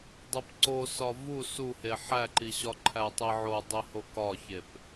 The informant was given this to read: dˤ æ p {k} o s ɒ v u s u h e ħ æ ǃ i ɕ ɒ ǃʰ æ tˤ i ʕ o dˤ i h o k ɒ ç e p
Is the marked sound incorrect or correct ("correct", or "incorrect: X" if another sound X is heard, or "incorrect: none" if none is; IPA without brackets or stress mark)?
incorrect: ǀ